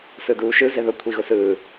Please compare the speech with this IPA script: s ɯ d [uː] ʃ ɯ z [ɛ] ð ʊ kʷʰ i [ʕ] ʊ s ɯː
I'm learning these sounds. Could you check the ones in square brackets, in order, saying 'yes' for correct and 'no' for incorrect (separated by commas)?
yes, no, no